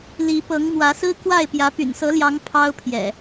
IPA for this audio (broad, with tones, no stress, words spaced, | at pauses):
li˨˦pɤ˨˦ŋ mwä˨˦sɹ̩˦ kwa˥˨ɪ̯pjä˨˦ py̰˨˩nsɤ˨˦ljɑ˨˦ŋ pʰɑ˦ʊ̯pʰjɛ̰˨˩